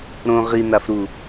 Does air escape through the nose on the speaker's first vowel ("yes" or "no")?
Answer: yes